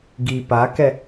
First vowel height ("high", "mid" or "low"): high